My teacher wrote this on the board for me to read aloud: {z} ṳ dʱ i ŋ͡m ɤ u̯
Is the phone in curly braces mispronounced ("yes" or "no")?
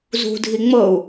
no